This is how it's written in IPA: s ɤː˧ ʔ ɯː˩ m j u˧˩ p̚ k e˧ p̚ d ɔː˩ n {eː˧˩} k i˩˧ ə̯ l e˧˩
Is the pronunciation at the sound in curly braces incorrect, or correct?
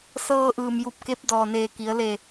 correct